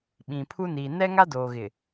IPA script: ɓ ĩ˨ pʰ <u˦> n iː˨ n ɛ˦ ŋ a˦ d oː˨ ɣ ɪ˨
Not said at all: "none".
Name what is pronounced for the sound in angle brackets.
u˦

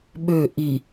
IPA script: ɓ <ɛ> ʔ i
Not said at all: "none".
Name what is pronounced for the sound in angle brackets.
ø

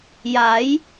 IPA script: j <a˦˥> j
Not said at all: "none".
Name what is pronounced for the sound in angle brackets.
a˩˦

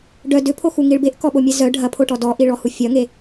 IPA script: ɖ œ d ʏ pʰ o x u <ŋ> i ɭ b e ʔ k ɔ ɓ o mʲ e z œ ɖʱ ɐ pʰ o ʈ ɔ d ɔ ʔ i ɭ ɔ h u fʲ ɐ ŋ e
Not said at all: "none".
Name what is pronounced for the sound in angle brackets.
ŋ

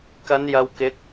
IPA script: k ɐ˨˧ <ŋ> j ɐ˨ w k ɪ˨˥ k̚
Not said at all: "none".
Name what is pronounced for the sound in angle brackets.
n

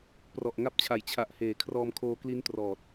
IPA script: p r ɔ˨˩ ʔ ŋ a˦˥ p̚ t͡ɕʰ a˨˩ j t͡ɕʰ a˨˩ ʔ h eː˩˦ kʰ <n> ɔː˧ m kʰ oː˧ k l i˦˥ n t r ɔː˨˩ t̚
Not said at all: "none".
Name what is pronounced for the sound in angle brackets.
r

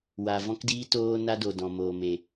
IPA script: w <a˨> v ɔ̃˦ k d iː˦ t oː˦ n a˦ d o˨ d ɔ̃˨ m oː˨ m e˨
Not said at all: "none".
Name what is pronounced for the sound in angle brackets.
a˨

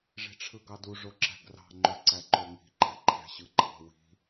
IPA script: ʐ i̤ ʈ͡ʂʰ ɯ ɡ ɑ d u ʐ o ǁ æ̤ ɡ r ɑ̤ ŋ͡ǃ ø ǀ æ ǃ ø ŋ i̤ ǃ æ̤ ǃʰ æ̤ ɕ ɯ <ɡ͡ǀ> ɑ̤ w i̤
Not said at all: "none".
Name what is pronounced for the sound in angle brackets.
ɡ͡ǃ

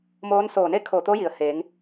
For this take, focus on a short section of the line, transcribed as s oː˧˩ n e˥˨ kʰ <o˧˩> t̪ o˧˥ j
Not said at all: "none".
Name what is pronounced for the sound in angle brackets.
o˧˩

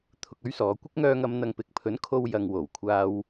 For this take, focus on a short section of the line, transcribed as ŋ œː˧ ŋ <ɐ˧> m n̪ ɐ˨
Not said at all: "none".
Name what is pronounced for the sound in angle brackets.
ɐ˨˧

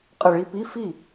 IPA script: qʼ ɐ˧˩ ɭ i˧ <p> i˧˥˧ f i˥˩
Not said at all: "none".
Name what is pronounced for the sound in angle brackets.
p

